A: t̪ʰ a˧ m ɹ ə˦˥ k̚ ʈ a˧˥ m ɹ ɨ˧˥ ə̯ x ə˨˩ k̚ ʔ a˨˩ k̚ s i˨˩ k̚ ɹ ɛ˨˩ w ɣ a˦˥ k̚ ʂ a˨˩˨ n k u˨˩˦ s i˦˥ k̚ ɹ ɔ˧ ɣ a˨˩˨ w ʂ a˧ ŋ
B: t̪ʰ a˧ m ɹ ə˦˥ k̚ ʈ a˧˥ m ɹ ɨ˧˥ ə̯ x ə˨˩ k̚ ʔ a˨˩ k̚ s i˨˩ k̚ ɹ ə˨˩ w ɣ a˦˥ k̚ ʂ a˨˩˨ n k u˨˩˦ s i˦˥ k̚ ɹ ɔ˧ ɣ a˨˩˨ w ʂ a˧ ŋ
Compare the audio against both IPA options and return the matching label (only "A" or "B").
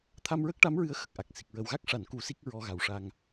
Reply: B